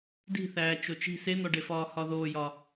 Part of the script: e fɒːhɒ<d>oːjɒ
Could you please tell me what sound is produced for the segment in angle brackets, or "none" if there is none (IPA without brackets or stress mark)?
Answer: ð